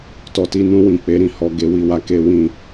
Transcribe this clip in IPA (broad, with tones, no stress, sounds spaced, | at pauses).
t ɔ˨ t i˧ n ũ˧ w ĩ˨ k͡p e˨˦ ɾ ĩ˦˨ h ɔ˧ ɡ e˧ w i˧ w a˧ k e˦ w ĩ˦˨